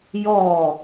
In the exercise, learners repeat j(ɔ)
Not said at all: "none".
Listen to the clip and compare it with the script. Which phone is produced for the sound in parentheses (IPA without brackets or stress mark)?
ɔ